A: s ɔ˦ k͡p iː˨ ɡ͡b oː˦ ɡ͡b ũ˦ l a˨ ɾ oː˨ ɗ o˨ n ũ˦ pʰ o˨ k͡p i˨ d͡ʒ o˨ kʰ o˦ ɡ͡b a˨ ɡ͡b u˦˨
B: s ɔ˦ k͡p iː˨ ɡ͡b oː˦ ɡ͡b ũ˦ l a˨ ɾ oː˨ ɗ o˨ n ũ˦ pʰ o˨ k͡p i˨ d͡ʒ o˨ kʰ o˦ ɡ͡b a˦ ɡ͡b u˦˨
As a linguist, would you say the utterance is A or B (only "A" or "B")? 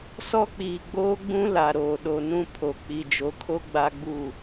B